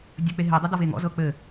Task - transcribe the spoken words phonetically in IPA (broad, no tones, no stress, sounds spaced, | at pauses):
dʲ ə k͡p e ɦ e dˤ ɤ d ɔ v e ŋ ɔ̰ z ɤ k͡p ɘ